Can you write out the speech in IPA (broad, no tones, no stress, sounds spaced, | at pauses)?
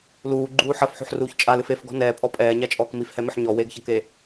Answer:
l uː ɡ͡ǃ uː ħ ɐ f ħ o̤ ħ r uː ç t͡ʃʼ a l ɨ f e f ɡ ɔ̤ n ɛː pʼ ɔ pʼ ɛː ɲ a t͡ʃʼ ɔː k m i f h ɛ m ɘ ħ ɲ ɔ w e ɡ ç ɐ k e